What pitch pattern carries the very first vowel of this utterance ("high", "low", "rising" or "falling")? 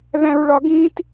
high